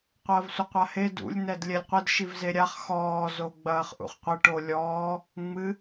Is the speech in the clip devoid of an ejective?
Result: yes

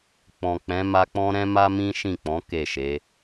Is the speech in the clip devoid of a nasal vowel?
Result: no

